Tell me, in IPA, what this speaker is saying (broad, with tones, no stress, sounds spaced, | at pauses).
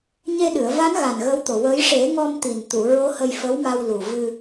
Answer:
ɲ e˧ ɗ ɨ˨˩˨ ə̯ v a˧˥ n ɣ a˨˩ n ɣ ə˧˥ w t̪ o˨˩ w əː˧˥ j ʂ e˨˩˦ ŋ ɔ˧ m t̪ i˨˩ n t̪ u˨˩˨ ɹ o˧˥ h ə˧ j f ə˧˥ w m a˧ w l u˨˩ v ɨ˧